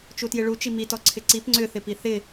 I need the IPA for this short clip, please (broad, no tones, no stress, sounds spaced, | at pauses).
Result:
t͡ʃ u t j ɪ ɭ u t͡ʃ i m i t ɔ ǀʰ ɪ ǀ i p ŋ͡ǀ ʏ θ ɪ p i θ ɪ